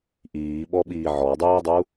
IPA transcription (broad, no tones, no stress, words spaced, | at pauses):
ʔiːɓɔɓiː ʕɔdˤuːdˤu